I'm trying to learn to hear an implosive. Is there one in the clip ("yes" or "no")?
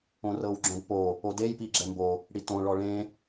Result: no